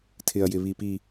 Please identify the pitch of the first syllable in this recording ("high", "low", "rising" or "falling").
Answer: low